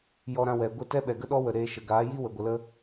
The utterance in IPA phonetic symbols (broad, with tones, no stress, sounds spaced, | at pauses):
j ɔ˦ ɾ ã˦ w ɛ˨ ɡʷ ə˦˨ t ɛ˦ ɓ ɛ˨ ɡ ə˦ ɗ ɔ˦ w ə˨ ɾ eː˧ ʃ ə˨ ɡ aː˨˦ j i˦ w ə˨ ɡʷ ə˨ l ə˦